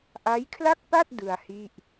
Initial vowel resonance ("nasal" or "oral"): oral